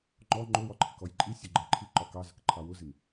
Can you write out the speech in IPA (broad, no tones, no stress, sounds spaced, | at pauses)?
ŋ͡ǃ ɔ ŋ͡ǃ ʊ w ɒ ǃʰ ɪ k ɔ j ǃʼ i sʲ ʊ ɡ͡ǃ ə ǃʰ i ǃ ɒ k ɑ z ə k ǃʰ ɑ w ʊ z ɪ m